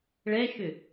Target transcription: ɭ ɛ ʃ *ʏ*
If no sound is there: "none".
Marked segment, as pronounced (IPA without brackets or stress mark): ʏ